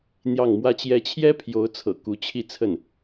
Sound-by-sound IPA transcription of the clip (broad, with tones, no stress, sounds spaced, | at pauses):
n̪ j ɑ˥˩ ŋ m w ä˥ t͡ɕ j ɛ˥ t͡ɕʰ j ɛ˥ pʰ j o˧˥ ʊ̯ t͡sʰ ɤ̰˨˩ k u˧˥ t͡ɕʰ i˥˧ t͡sʰ ə˥˩ n